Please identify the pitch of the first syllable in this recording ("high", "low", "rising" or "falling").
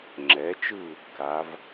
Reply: rising